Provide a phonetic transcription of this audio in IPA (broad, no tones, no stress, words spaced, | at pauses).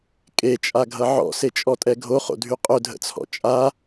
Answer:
kʼet͡ʃʼaɡʱʌ ʕɔ̰set͡ʃʼɔtʼɛ ɡʱoχo̰dʱy qʼɵdʱə̰t͡sʰɔ̰ t͡ʃʼa